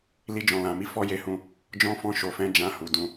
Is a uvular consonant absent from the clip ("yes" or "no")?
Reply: yes